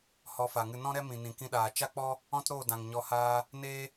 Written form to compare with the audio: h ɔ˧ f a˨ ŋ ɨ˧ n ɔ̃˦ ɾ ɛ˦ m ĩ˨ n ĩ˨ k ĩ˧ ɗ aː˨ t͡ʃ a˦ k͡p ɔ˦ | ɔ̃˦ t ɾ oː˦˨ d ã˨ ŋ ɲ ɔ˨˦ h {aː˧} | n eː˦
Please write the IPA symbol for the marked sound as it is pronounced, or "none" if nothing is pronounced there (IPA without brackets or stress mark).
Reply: aː˧